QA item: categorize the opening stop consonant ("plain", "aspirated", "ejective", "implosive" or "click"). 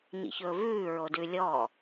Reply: plain